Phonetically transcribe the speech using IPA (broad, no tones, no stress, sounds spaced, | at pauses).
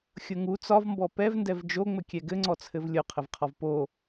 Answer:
xʲ ʊ ŋ u t͡s ɒ v m b ɔ p ɛ v n d ɛ v d͡ʒ o ŋ͡m ɘ kʲ ɛ ɡ ɘ ŋ͡ǀ ɔ t͡sʰ ɘ v lʲ ʊ qʰ ɘ v qʰ ɒ v p o